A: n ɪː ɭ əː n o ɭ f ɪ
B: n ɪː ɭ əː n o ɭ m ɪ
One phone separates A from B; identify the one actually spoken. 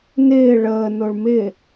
B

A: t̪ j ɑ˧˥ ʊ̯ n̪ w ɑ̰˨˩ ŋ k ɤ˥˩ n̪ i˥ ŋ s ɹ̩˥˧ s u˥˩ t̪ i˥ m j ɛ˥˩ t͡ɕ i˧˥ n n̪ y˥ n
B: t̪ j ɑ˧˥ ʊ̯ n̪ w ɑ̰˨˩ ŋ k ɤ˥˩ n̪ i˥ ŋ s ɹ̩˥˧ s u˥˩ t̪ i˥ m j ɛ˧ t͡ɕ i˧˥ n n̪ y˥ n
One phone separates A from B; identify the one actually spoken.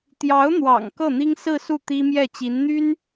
A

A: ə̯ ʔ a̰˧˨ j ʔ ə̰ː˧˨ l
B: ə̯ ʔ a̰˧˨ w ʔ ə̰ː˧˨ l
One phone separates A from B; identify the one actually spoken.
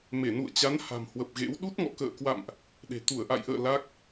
A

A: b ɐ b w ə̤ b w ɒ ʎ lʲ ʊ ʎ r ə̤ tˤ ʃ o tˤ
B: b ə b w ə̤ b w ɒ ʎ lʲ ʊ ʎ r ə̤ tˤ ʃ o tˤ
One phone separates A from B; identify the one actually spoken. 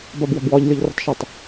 A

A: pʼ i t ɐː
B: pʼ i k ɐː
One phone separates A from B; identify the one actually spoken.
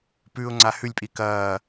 B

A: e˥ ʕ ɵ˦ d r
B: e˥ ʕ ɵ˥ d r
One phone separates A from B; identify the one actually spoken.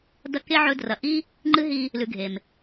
A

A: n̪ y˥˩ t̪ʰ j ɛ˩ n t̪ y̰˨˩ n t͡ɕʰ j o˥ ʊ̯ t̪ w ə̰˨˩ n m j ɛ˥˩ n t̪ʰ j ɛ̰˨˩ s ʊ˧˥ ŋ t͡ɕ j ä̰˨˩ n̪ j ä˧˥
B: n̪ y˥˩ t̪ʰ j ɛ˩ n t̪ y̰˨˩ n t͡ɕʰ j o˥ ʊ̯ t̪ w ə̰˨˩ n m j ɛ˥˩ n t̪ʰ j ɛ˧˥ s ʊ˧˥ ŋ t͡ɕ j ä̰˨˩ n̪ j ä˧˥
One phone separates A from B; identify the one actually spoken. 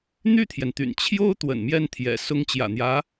A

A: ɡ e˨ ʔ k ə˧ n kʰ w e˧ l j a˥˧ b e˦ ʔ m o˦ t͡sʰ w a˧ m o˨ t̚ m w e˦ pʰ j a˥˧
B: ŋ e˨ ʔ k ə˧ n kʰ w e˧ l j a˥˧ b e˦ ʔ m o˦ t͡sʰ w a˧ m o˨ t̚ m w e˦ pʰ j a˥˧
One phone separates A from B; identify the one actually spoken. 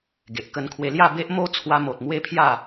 A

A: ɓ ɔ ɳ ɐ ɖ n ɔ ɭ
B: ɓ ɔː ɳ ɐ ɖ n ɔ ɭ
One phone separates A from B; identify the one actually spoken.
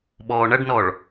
B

